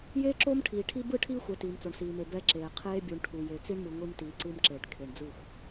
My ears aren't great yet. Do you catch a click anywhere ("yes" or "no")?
yes